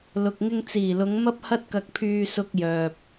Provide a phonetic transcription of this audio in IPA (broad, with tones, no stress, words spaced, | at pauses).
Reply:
lʊ˨k̚ŋɪ˧ŋt͡siː˨˩ lʊ˨˧ŋ mɐ˥p̚ hɐ˥t̚kɐ˧k̚pʰyː˧sʊ˧k̚ jœː˨p̚